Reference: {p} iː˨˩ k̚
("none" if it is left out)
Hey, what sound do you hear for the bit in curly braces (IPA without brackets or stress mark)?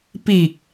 p